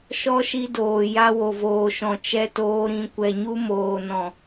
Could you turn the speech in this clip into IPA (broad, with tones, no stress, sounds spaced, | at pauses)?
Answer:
ʃ ɔ˦ ʃ i˧ d oː˨ j a˧ w o˨ v oː˨ ʃ ɔ̃˨ t͡ʃ ɛ˧ t oː˧ ɾ ĩ˨˦ kʷ ɛ˨ ɲ u˧ m oː˨ n ɔ̃˨